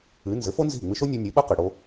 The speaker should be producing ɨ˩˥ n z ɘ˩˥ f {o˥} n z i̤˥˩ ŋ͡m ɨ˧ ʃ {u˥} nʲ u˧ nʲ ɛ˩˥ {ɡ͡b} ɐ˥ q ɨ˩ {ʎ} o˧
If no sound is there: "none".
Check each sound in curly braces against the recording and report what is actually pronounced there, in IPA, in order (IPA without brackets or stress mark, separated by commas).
o˥, o˥, ɓ, ɽ